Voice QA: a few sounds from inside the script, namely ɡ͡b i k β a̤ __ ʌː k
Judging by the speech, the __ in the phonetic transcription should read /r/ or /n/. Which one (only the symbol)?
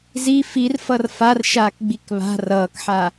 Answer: r